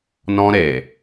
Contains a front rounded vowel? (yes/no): no